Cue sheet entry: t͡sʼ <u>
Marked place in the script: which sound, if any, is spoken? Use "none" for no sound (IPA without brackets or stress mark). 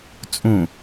ũ